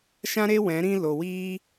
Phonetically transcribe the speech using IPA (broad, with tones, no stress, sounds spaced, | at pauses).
ʃ ã˦ ɾ e˦ w ɛ̃˨˦ ɾ ĩ˦ l o˨ w iː˦